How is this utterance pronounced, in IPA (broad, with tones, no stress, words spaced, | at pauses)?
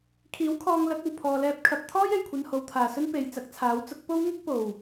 kʰiː˨˥wkʰɔː˧ŋ lɐ˨˥k̚o˨˩wpʰɔː˨ lɛː˧p̚ kʰɐ˨p̚t̪ʰɔː˥j e˨jkʷʰɐ˧n ho˨wt̪ʰaː˨˩sɵ˥n pe˨j t͡sɐ˨˥k̚t͡sʰaː˨˥w t͡sʊ˨˥k̚ po˥w ŋʊ˥k̚ po˨˩w